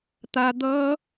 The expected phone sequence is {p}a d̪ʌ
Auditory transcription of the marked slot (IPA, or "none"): t̪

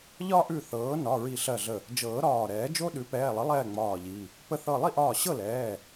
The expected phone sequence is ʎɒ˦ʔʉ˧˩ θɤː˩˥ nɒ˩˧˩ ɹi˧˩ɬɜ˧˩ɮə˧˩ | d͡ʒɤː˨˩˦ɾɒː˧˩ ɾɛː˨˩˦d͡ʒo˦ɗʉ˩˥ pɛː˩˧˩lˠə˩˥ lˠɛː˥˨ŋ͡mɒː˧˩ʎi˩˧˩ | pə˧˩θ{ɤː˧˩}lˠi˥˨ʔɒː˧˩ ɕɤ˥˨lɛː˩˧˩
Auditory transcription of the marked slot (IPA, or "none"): ɤ˧˩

